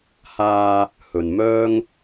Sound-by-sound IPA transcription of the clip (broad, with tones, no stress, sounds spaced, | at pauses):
h aː˧ | h ɵ˨ n m œː˥ ŋ